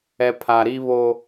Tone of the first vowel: low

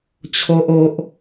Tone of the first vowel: high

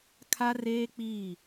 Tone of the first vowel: high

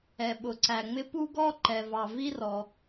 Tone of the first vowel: low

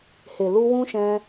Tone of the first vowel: low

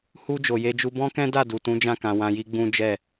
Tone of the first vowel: high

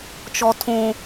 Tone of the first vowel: high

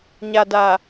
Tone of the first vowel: low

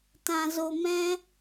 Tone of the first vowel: low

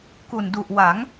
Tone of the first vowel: low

